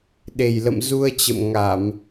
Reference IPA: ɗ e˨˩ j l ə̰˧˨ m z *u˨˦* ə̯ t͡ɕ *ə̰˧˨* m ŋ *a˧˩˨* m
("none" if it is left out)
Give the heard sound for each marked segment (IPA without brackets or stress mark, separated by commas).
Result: u˧, ə̰˧˨, a˧˩˨